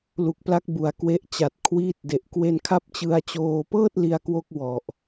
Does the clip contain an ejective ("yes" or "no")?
no